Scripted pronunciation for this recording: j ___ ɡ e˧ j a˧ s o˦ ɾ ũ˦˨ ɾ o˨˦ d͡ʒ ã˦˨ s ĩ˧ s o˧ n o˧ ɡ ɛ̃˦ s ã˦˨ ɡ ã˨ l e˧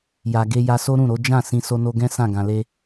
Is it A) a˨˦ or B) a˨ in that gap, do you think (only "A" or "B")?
B